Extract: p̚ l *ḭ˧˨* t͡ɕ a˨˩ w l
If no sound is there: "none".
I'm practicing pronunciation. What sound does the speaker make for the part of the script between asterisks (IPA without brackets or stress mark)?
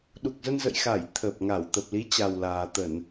i˨˦